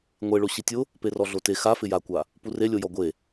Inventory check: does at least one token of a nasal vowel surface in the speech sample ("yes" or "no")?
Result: no